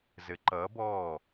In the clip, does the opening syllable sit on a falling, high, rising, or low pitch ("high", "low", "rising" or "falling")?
rising